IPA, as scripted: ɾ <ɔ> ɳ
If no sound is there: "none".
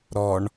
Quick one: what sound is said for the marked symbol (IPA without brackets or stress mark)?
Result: ɔ